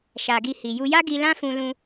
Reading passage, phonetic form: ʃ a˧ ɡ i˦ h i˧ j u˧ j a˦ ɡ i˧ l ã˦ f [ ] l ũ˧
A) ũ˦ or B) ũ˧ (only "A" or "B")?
B